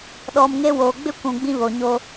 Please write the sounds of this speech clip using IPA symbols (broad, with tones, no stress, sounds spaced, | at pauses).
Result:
ɗ ɔ˨ m ŋ e˦ w oː˨ ɡ͡b ɪ˦ kʷ ũ˨ ɡ͡b ĩ˦ β o˨ ɲ o˦